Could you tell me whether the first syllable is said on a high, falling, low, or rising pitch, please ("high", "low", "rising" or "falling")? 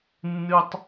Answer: high